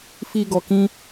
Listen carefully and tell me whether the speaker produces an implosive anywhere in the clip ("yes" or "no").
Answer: no